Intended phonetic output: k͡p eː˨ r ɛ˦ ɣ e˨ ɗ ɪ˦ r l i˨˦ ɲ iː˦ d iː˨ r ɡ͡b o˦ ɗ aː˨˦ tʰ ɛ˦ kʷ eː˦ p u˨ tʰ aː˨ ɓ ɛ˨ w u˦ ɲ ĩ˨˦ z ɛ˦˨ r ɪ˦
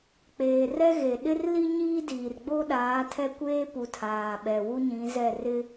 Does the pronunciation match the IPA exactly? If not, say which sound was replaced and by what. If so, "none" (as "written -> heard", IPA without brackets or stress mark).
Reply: i˨˦ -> i˦